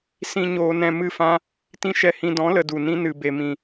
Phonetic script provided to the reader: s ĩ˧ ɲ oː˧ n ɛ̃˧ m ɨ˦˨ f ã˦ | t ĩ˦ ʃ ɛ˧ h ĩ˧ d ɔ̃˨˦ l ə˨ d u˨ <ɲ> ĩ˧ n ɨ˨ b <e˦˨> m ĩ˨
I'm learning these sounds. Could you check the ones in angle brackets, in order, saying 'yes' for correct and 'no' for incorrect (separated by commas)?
no, no